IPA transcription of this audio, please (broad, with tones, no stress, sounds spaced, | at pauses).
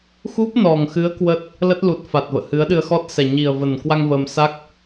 x u˦˥ p̚ n ɔ˨˩ ŋ x ɨ˨˦ ə̯ k w ə˦˥ t̚ | l ə˦˥ t̚ l u˨˩ t̚ f a˨˩ t̚ v ə̰ː˧˨ h ɨ˨˦ ə̯ ɗ ɨ˧ ə̯ x ɔ˦˥ t̚ s ɛ˨˩ ɲ i˨˩ ə̯ v ə˨˩ n k w a˧ ŋ v əː˧ m s a˦˥ k̚